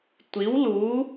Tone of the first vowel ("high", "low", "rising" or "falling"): rising